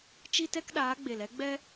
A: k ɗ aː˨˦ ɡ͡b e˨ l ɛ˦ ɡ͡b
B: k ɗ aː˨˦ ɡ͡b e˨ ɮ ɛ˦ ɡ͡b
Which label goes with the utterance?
A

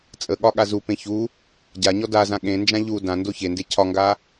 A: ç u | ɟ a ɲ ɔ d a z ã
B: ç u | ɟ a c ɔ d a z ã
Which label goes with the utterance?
A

